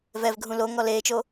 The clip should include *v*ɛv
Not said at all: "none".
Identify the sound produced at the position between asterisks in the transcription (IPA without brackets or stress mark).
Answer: v